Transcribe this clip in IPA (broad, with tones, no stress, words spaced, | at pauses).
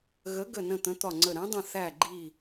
ɣə˨˥ɡə˧˩nə̃˧˩ t̪ə̃˨˥t̪ɒ˧˩ŋ͡ǀə˧˩ ɾɛ̃˨˥dˤə̃˧˩ θæ˧˩ɡ͡ǃi˧˩